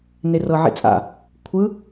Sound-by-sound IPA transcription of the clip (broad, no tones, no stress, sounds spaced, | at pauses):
n e r ɤ ʕ ḭ t͡sʼ a̰ | kʷʰ ɯ